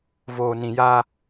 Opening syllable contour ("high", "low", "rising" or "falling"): low